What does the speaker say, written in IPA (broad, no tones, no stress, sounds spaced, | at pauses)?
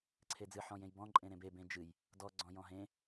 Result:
ǀʰ e d͡z ɨ ħ ɔ̃ j ẽ j b ɔ̃ ǃʼ ẽ ɾ ẽ b e b ẽ d͡ʒ ɨ j | d ɔ ɡ͡ǀ ɔ̃ j ɔ̃ ɦ ẽ